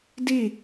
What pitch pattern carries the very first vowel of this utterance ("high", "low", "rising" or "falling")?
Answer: falling